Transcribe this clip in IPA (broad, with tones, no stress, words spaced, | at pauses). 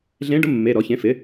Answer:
ɮẽ˧˥ɖʊ˧˥ mːe˩˧˩ɾɔ˨˩˦çẽ˩˥ fɪ˩˥